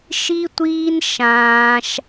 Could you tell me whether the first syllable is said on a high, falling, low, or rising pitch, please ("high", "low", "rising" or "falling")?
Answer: high